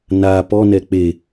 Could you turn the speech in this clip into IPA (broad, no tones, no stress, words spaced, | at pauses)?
na pɔnɛ k͡pe